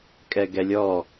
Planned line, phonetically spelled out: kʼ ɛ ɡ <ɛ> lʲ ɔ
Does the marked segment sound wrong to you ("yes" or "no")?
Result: no